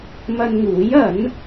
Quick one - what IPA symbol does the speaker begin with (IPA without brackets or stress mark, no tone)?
m